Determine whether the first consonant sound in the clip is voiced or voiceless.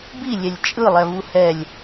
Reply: voiced